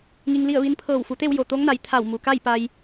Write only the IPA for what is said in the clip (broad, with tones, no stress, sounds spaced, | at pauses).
ŋ i˧ ŋ l i˥˨ ə̯ ʋ i˧˥ n pʰ ɤː˧˩ w f u˩˧ t̪ e˥˨ w j o˧˩ t̪ o˧˥ ŋ n a˩˧ j t̪ʰ a˧˩ w m u˩ k a˥˨ j p a˧ j